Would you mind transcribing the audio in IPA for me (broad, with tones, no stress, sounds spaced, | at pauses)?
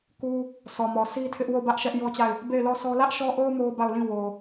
k u˦ | sʰ ɔ˨ m ɔ˨ sʰ i˦ tʰ ɪ˦ ʔ w o˦˨ b ä˦ ʔ ʃ ɛ˦ ʔ j ɔ˦ t͡ɕ a˦˨ ɪ̯ | b e˦˨ ɪ̯ l ɔ˦˨ s ɔ˦ l ä˦ ʔ ʃ ɔ˦ ʔ o˦ ʊ̯ m o˦ ʊ̯ b a˦˨ ʊ̯ l ĩ˦˨ w o˨